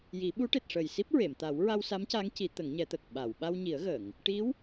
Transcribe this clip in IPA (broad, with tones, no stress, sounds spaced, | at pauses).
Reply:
j i˨˩˦ ɓ u˧˥ ʈ e˨˩ t̚ ʂ əː˨˩ j s i˦˥ p̚ ɹ e˨˩˨ m t̪ a˨˩˦ w ɹ a˧ w s a˧˥ m c a˧˥ ŋ c i˨˩˦ t̪ ə˨˩˦ ŋ ɲ ɛ˨˩˦ t̪ ə˨˩ k̚ ɓ a˨˩˨ w ɓ a˧ w ɲ i˨˩˦ ə̯ ɣ ə˨˩˨ ŋ | ʈ i˧˥ w